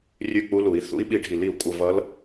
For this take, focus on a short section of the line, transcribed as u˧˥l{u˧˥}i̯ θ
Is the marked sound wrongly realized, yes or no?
yes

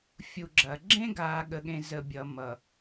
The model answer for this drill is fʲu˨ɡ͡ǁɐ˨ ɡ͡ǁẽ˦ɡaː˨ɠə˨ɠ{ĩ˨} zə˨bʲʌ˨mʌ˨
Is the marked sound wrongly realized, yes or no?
yes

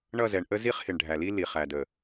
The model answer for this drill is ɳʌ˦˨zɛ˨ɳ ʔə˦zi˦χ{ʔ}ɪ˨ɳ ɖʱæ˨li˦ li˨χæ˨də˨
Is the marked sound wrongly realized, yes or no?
yes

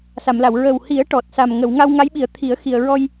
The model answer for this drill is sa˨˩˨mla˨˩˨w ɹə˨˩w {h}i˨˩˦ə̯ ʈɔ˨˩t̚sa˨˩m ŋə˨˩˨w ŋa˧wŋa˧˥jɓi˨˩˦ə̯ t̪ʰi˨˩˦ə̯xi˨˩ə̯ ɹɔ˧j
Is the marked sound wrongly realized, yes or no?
no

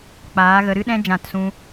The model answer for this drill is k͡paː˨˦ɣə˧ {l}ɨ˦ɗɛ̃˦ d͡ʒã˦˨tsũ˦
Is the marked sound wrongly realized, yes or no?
yes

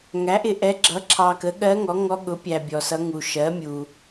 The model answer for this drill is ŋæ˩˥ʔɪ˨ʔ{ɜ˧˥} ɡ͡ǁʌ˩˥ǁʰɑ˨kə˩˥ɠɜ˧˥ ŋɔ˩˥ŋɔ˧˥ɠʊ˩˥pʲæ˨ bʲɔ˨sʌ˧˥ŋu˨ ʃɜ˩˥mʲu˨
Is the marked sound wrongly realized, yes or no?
yes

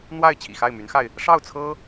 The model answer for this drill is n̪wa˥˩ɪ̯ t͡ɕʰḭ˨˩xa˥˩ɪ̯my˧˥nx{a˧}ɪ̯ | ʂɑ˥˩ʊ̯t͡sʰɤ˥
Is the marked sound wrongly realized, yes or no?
no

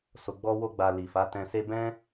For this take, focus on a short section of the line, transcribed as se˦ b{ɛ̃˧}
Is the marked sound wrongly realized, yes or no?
yes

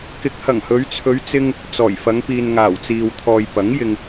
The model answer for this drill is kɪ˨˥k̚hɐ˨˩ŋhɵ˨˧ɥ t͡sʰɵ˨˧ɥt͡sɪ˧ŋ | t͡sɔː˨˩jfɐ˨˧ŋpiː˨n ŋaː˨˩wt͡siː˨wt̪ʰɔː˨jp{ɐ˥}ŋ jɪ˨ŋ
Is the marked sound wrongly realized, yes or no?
yes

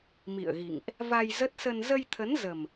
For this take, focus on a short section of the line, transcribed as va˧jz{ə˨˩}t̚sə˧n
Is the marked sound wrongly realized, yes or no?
yes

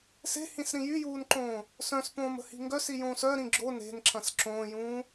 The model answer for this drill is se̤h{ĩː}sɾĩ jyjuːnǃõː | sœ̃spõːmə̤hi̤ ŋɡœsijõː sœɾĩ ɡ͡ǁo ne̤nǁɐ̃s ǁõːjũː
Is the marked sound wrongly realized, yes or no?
yes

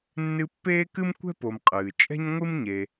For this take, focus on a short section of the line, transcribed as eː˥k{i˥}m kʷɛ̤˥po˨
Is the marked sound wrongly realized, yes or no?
yes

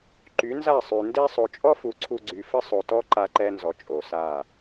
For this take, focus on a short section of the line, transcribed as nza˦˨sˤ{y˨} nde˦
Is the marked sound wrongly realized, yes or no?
no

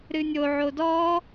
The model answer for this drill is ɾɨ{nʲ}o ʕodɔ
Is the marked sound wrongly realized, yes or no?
no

